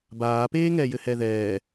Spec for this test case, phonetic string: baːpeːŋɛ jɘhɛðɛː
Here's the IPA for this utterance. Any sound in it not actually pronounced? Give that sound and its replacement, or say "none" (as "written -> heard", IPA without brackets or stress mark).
none